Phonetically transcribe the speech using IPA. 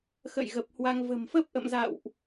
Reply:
xə̰˧˨j ɣə˨˩p̚hwa˧ŋ və̤˨˩mfə˦˥p̚ʔə̰˧˨mza̰˧˨wʔ

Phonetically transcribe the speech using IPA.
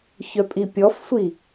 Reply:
çœpʼipʲɔfsʷi

